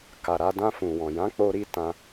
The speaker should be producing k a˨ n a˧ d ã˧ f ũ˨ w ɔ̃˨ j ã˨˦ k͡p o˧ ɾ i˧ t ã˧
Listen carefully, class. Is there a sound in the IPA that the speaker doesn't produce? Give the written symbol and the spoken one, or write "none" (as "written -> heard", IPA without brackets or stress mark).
n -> ɾ